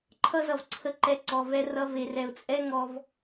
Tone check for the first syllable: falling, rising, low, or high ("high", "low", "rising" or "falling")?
high